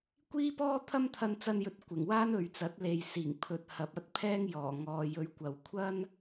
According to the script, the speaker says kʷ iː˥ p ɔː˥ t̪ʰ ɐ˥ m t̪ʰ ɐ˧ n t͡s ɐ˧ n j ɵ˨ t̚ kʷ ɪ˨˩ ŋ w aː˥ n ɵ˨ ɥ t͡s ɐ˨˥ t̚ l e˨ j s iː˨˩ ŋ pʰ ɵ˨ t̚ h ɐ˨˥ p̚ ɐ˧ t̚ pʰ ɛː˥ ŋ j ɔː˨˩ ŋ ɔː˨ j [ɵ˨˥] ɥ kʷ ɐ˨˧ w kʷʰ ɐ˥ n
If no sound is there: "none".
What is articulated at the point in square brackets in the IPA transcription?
ɵ˨˥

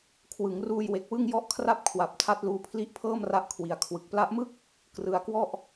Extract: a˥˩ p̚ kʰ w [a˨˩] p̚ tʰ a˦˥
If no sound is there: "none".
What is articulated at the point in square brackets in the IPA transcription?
a˨˩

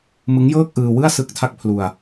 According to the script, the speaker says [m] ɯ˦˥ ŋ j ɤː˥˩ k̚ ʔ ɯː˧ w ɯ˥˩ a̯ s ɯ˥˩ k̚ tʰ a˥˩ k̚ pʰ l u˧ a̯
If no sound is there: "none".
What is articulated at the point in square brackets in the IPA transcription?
m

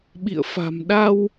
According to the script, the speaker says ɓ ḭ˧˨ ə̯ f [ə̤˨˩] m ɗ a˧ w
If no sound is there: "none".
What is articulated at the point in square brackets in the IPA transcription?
a̤˨˩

